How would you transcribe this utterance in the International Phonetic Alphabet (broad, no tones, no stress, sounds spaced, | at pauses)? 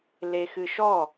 l e x ɨ ʃ ɔ